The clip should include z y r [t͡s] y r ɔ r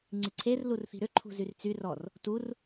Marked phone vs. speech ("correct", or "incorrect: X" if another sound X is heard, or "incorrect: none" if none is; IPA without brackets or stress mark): correct